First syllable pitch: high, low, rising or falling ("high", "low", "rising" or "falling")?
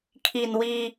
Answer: low